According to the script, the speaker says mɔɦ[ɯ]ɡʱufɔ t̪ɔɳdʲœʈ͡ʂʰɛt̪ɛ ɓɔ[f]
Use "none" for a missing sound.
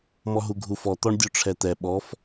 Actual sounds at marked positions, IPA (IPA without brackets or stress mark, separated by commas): u, f